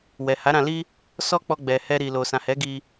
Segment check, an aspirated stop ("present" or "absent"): absent